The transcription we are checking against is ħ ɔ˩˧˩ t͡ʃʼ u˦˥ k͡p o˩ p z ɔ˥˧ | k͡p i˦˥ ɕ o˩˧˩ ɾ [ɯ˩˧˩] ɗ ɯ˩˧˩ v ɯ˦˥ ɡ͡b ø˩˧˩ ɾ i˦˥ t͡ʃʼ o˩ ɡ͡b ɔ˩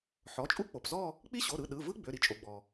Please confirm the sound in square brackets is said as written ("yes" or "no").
yes